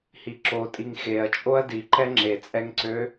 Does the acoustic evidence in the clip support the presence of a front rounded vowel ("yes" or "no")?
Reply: yes